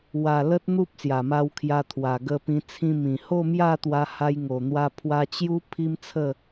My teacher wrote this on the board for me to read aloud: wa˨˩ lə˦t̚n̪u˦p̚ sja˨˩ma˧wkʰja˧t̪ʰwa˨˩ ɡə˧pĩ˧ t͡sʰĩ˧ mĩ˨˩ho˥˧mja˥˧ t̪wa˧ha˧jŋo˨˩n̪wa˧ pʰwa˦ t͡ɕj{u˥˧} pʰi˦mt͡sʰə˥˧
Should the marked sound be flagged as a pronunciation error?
yes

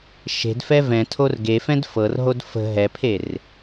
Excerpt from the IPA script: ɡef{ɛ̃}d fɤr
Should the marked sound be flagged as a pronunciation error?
no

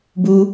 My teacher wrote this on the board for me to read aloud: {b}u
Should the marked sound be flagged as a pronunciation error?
no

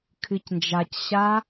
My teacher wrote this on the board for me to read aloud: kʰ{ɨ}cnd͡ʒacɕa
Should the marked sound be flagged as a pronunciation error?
no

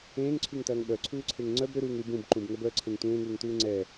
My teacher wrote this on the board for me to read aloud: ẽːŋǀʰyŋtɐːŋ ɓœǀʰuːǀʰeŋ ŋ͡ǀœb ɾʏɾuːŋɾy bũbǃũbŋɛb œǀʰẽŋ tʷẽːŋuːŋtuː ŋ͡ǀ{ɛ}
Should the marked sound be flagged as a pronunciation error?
no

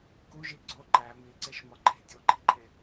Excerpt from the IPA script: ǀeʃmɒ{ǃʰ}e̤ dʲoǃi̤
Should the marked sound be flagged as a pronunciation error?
no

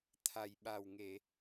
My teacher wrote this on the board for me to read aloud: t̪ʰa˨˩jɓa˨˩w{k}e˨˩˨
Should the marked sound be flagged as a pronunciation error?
yes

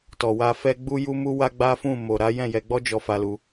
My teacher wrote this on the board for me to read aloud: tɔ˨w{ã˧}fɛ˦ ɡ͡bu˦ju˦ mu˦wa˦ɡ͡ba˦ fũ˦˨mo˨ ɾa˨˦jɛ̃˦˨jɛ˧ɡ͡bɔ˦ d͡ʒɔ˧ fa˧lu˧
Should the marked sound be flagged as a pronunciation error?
yes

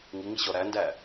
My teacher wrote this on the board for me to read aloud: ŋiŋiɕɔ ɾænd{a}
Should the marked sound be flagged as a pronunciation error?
yes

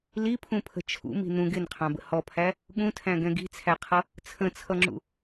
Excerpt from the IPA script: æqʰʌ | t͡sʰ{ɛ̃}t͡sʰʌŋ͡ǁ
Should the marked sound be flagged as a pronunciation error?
yes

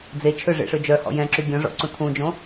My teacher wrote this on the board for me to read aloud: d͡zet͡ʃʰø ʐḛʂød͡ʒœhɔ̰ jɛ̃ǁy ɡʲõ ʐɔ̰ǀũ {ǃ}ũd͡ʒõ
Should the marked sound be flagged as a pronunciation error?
yes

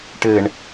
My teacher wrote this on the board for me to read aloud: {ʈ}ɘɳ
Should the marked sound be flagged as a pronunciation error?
no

